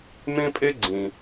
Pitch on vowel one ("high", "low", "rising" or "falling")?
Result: high